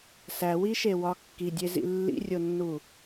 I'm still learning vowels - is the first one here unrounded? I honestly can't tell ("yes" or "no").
yes